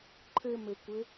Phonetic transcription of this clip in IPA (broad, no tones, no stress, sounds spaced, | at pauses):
ǃʰ ɘ m ɘ kʷ ɘ